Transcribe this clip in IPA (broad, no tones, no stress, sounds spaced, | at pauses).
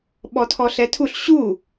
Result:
ɓ ɔ tʰ ɔ ɬ ɛ tʰ u ɬ ɕ u